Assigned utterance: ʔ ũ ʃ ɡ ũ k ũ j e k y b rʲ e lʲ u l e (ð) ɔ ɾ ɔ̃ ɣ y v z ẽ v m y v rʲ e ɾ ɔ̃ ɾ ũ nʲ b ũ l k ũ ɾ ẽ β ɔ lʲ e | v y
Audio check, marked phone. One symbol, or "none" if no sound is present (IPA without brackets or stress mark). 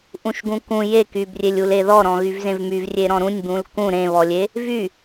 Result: ð